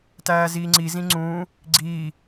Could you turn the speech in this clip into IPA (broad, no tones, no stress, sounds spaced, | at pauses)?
t æː z iː ŋ͡ǀ i z ĩ ŋ͡ǀ ũː | ɡ͡ǀ iː